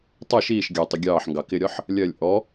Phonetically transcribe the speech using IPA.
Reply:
tˤ ʌ ʃ iː ʃ ɡʲ ɑ tˤ ɪ ɡʲ ɑː ħ ŋ ɡ ɑ k ɪ ɾʲ ɒ ħ | lʲ ɜ lʲ ʔ ɔ

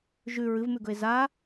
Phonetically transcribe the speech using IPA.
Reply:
ʒ ʉ ɹ ɨ v m ʉ ɡ ɵ e̯ z a

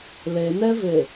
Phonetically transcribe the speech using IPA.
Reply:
l e n ɛ v e

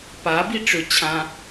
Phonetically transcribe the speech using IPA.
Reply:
p a b i ʈ͡ʂ ʏ t͡ɕʰ ã

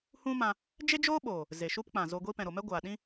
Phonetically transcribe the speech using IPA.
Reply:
h ũ˦ m ã˧ | d͡ʒ e˦ d͡ʒ oː˦ ɓ oː˨ | z e˨ ʃ u˦ p k͡p ã˨ z o˧ ɡʷ i˦ p ɛ̃˨ ɾ o˨ m ɛ˦ ɡʷ aː˨ ɗ ĩ˦

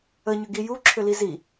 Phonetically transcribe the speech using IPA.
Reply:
ə ɲ ʏ ɡ i j u ǁʰ ʏ l i z i

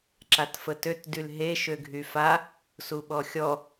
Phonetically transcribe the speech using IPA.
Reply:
ǁ a t f ə t ø t d y l ɦ e ʃ ø ɡʱ y f a | s u ɓ ɔ xʲ ɔ

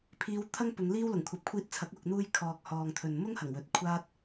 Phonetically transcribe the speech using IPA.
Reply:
pʰ iː˨˧ w t̪ʰ ɐ˥ ŋ p ʊ˨˧ ŋ l iː˥ w l ʊ˨˩ ŋ kʷʰ ɐ˨˥ p̚ kʷʰ iː˧ t̚ t͡sʰ ɐ˨˥ k̚ w ʊ˨ k̚ n̪ uː˧ j kʰ ɔː˨ k̚ h ɔː˨ ŋ t̪ʰ ɵ˨ n m ʊ˥ ŋ h ɐ˨˩ ŋ w ɵ˨˥ t̚ kʷʰ aː˥ t̚

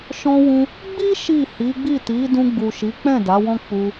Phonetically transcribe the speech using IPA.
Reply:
ʃ ɔ̃˧ w ũ˧ | ɡ͡b i˦ ʃ i˦˨ h i˨˦ ɡ͡b i˦˨ t i˨˦ d ũ˧ ɡ͡b u˨ ʃ i˨˦ k͡p ɛ̃˦˨ d a˨˦ w ɔ̃˦ k͡p u˧

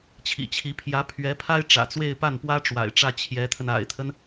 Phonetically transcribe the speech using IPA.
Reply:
t͡ɕʰ ḭ˨˩ t͡ɕʰ i˧˥ pʰ j ä˧˥ pʰ ɥ ɛ˧˥ pʰ a˥ ɪ̯ ʈ͡ʂ ä̰˨˩ t͡s w e˥˧ ɪ̯ p a˥˩ n p w ä˥ ʈ͡ʂ w a̰˨˩ ɪ̯ ʈ͡ʂ ä˥˩ t͡ɕʰ j ɛ˧˥ t̪ʰ ə˧ n a̰˨˩ ɪ̯ t̪ʰ ə˦ n

